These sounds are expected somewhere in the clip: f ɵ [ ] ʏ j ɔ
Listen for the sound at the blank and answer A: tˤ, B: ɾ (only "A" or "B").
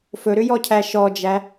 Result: B